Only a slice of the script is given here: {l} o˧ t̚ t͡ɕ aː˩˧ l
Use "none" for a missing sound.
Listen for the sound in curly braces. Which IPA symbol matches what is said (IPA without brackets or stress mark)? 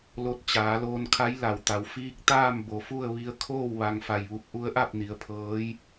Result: l